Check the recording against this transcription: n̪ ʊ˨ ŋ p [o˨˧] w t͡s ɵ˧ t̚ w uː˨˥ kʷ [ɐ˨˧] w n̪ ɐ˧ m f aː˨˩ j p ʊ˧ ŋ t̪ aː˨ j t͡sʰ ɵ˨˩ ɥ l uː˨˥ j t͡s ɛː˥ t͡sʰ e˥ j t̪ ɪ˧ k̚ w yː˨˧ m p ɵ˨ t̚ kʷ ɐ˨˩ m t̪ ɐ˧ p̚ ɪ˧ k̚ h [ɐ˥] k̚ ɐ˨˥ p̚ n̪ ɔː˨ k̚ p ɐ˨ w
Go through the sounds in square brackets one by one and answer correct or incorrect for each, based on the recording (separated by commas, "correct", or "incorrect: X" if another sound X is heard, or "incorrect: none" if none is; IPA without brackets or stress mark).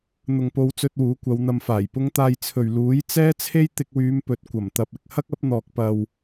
correct, correct, correct